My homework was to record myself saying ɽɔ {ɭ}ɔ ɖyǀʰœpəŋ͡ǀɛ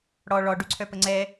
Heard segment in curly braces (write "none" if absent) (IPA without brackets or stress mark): ɭ